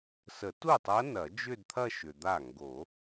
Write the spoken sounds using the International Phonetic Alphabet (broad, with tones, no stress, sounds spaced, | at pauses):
s ə˨˩˦ t u˥˩ tˤ ɐ˧˥ n ɐ˨˩˦ d͡ʒ ʏ˥˧ d t̪ʰ ɐ˥˧ ʃ ʏ˨ d̪ a˥˩ ŋ ɡ o˨˩˦